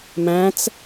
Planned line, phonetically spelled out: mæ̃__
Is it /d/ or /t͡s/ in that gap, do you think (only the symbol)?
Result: t͡s